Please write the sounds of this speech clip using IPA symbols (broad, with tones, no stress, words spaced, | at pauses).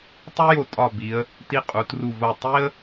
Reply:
tˤu˥jo˧ tʼɒ˧˩bi˩˧ə̯ | ti˧˩ qʼu˩˧tru˧˩vo˧˩ tˤi˥ə̯